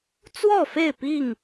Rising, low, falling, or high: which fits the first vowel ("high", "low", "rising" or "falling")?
falling